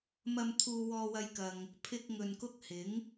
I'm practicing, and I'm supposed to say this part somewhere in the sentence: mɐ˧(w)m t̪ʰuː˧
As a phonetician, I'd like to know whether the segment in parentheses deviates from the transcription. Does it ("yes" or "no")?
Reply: yes